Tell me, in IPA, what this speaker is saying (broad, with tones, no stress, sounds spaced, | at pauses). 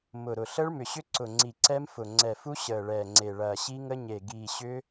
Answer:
m ʊ˨˩ ɾ ʊ˨˩ ɬ əː˦˥ ɭ m ʏ˨˩ ɕ ʏ˦˥ ǀ ʊ˨˩ ŋ͡ǀ i˨˩ ǀ ɛ˦˥ m f ʊ˨˩ ŋ͡ǀ ɛ˨˩ f u˦˥ ɕ əː˨˩ ɭ ɛː˨˩ ŋ͡ǀ e˨˩ ɭ ɐː˨˩ ɕ i˦˥ ŋ ə˦˥ ɲ e˨˩ ɡ iː˨˩ ɕ ʏ˦˥